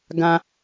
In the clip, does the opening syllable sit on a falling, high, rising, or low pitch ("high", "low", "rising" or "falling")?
high